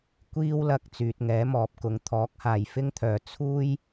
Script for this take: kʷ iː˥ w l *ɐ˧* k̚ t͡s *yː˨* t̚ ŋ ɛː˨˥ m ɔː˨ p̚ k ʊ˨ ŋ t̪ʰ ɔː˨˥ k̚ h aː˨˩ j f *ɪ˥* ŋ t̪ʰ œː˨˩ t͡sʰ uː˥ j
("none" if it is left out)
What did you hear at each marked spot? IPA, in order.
ɐ˧, yː˨, ɪ˥

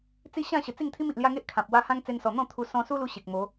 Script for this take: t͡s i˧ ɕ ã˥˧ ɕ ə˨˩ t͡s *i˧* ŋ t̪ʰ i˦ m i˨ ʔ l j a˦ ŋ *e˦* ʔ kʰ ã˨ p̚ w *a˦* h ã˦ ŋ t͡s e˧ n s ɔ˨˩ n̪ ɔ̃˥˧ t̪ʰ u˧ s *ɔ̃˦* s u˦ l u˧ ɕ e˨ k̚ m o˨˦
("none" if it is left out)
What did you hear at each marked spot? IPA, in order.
i˥˧, e˦, a˦, ɔ̃˧

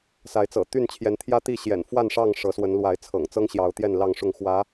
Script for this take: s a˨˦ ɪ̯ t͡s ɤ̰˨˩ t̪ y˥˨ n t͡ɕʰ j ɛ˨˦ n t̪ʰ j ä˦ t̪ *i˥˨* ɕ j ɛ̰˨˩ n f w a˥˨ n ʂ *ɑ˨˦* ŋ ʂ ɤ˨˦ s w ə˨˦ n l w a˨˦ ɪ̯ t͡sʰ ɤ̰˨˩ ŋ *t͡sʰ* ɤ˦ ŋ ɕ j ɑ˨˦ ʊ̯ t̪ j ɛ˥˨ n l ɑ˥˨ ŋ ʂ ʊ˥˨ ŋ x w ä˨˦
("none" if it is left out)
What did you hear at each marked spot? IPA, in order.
i˥˨, ɑ˥˨, t͡s

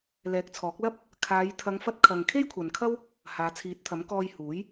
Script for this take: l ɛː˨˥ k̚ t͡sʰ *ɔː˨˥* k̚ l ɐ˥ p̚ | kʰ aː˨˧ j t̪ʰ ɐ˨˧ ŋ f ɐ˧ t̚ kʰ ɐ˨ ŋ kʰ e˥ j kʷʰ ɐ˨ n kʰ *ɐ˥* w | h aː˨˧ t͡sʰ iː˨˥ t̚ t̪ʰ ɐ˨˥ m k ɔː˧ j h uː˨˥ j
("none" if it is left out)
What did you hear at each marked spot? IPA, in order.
ɔː˨˥, ɐ˥

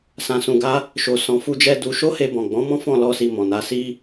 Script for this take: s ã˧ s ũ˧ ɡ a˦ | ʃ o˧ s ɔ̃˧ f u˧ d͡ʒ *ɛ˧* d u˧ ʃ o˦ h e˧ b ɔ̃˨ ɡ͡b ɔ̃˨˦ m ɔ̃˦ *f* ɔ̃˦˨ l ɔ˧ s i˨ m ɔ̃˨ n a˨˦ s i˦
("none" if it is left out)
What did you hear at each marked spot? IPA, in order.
ɛ˧, f

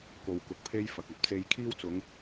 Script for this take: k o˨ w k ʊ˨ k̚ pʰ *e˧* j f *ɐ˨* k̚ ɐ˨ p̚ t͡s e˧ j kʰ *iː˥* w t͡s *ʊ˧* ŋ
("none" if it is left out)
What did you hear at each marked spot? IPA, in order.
e˥, ɐ˨, iː˥, ʊ˨˧

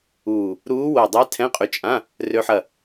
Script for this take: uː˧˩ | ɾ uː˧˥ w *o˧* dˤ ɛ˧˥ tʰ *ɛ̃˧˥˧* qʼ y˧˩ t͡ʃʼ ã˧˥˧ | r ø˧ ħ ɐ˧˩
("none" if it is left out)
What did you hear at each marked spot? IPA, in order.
o˧˩, ɛ̃˧˥˧

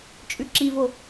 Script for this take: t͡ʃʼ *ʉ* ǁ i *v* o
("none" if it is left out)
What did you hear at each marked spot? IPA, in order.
ʉ, v

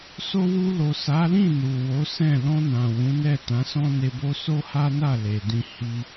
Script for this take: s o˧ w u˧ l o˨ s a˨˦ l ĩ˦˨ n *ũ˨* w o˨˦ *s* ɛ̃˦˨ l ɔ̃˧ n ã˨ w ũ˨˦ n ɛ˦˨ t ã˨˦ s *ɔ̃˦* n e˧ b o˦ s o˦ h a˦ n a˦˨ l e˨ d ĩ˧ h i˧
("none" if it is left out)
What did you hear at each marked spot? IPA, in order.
u˨, s, ɔ̃˦

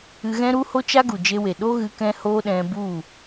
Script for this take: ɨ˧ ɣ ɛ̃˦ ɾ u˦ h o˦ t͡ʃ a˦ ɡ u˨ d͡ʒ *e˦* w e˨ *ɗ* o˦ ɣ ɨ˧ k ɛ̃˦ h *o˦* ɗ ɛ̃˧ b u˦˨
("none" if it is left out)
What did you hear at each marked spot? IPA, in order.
e˧, ɗ, o˦

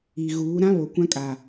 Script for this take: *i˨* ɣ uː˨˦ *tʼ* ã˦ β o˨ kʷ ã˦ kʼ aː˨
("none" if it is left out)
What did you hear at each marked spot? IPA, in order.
i˨, ɾ

